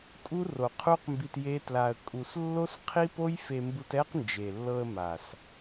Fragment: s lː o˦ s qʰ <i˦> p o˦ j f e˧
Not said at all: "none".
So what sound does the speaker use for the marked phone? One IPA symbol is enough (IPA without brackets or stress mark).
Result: i˦